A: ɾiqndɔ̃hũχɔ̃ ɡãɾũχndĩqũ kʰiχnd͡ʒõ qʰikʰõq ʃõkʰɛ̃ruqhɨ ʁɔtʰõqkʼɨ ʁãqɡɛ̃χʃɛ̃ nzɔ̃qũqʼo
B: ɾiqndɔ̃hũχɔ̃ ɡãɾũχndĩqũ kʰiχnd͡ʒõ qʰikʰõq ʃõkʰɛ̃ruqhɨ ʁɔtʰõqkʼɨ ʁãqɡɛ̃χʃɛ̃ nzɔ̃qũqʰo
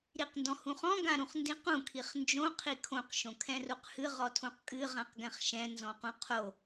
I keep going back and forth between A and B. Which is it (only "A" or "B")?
B